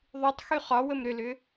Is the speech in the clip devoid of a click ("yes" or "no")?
yes